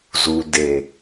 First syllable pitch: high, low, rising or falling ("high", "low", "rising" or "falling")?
low